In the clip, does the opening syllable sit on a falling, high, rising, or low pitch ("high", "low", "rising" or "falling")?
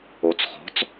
rising